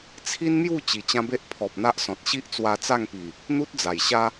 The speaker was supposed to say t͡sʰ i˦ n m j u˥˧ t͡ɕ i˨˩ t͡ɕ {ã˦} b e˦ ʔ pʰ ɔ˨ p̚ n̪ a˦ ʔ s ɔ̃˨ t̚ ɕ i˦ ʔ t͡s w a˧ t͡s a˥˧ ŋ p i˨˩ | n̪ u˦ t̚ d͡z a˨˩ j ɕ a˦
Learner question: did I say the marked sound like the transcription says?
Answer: yes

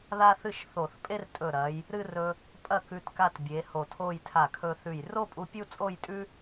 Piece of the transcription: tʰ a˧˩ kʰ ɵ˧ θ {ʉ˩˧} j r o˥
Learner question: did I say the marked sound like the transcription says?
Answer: no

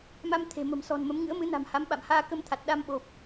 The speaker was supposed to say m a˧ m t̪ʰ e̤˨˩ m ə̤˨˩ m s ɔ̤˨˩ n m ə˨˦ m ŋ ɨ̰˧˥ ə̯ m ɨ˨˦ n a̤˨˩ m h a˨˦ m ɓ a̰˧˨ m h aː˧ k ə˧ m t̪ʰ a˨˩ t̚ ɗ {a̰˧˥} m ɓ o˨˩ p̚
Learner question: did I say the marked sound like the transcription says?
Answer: no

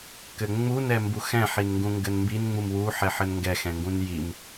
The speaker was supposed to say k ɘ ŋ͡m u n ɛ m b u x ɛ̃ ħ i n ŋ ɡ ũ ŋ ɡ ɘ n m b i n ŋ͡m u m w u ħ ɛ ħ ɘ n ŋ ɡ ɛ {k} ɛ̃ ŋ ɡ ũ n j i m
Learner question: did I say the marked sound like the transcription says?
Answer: no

